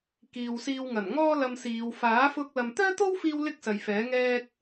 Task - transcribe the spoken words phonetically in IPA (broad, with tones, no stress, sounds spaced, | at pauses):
k iː˨ w s iː˧ w ŋ ɐ˨˩ n ŋ ɔː˥ l ɐ˧ m s iː˨˧ w f aː˨˥ f ʊ˧ k̚ l ɐ˨ m t̪ œː˥ t̪ o˥ w f iː˧ w l ɪ˥ k̚ s ɐ˨ j f ɛː˨˥ ŋ ɛː˥ k̚